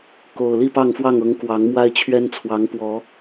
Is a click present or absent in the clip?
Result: absent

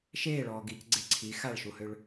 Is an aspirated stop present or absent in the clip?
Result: present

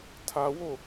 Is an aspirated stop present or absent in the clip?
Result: present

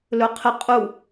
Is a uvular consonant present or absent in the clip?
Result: present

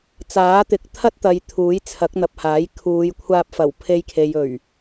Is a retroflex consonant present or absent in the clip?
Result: absent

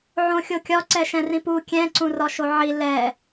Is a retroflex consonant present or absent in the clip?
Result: absent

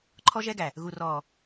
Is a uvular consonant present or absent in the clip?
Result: absent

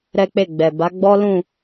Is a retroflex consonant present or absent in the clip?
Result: absent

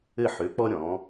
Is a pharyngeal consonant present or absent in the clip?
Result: present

